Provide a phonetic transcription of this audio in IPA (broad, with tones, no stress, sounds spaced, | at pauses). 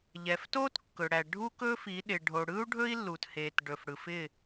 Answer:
ʎ ɛ˨ f t o˦ t kː ɵ˨ ɽ æ˨ ɖʱ u˦ k ɵ˦ f i˨˦ ɗ ɪ˨ ɖʱ o˨ ɽ ɯ˦ u̯ ɖʱ ɵ˦ i̯ lː u˨ t h e˨ t ɖ ɵ˨ f ɽ ɯ˨ f ɪ˦˨